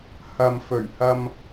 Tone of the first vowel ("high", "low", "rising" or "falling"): low